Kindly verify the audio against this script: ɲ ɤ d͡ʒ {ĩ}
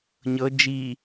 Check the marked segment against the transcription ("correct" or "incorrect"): incorrect